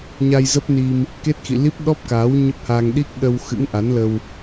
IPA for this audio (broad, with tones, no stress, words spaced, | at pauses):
ɲa˧jzə˦˥p̚ni˧m | ke˦˥t̚xḭ˧˨li˦˥p̚ ɗɔ˦˥p̚kaː˨˦w ɲə˦˥p̚haː˧ŋ ɗi˦˥k̚ɗə˧w xɨ̰˧˥ŋʔa˨˦nlə˧w